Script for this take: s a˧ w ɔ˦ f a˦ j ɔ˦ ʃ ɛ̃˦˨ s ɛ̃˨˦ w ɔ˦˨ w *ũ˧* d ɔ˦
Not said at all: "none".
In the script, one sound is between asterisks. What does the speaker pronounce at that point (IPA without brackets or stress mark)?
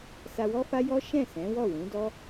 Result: ũ˨˦